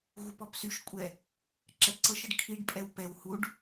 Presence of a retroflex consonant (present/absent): present